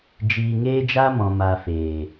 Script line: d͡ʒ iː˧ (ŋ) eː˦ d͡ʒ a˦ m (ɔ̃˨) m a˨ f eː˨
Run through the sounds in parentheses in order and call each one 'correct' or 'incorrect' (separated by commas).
correct, correct